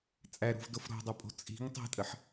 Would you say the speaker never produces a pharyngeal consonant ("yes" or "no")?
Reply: no